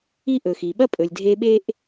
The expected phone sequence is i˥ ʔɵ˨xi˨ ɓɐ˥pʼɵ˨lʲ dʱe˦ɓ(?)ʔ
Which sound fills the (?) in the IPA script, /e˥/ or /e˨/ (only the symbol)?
e˥